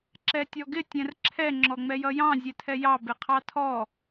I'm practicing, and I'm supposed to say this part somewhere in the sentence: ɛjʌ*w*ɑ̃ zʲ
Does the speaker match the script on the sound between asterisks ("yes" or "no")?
no